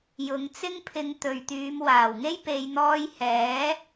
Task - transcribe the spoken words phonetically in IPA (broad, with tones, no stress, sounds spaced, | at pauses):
j ʊ˨˧ ŋ t͡s ɪ˥ ŋ pʰ ɪ˧ ŋ t̪ ɵ˨ ɥ t̪ yː˨˧ m w aː˨˩ w ŋ e˥ j p e˧ j n̪ ɔː˧ j h ɛː˨˥